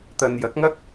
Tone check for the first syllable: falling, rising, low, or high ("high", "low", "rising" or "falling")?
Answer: low